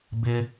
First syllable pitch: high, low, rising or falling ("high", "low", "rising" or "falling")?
high